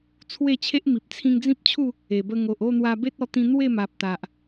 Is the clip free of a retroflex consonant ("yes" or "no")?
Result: yes